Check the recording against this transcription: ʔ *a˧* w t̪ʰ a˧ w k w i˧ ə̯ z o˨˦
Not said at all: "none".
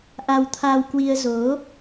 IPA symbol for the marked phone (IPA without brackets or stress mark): a˧